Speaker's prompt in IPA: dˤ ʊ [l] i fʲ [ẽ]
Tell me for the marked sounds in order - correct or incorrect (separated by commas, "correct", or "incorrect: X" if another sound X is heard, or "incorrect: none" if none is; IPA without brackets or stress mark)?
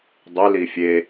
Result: correct, incorrect: e